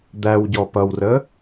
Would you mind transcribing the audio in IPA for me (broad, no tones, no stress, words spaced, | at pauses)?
d̪æwɟɔ pʌwrə